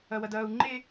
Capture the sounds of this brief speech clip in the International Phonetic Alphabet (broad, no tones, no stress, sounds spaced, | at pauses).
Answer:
ɐ w ɐ d ɐː u̯ ŋ͡ǃ e